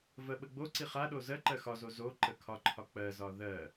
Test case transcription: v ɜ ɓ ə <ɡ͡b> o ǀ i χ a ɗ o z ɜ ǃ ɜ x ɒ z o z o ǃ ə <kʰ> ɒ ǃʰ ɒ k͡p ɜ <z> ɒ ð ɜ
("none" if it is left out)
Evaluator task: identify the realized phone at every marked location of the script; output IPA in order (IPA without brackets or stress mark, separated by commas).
ɡ͡b, kʰ, z